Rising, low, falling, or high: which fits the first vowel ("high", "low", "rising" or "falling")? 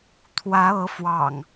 rising